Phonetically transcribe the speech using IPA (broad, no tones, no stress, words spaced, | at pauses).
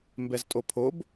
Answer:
mbɛztʼopʰob